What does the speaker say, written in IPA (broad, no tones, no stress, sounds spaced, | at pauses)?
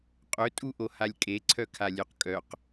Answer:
qʼ ɵ tʼ u ʔ o h a lʲ kʼ e ǀʰ œ kʰ a lʲ ɵ q kʼ œ q